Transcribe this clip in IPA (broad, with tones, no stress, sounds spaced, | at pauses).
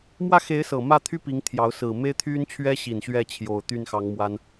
m w ä˥˩ x e˧˥ ɪ̯ s ɤ˨˩ m ä˥˩ t̪ʰ y˥ p i˧˥ ŋ t̪ʰ j ɑ˧˥ ʊ̯ s ɹ̩˨˩ m e˥ ɪ̯ t̪ʰ y˥ n t͡ɕʰ ɥ ɛ˥ ɕ i˨˩ n ɕ ɥ ɛ˥˩ t͡ɕʰ j o˨˩ ʊ̯ t̪ y˥˩ n x ɑ˧˥ ŋ m w a˥ n